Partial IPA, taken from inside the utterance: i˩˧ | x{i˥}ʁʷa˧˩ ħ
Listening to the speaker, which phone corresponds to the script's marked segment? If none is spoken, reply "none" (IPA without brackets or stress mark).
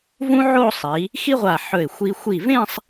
i˥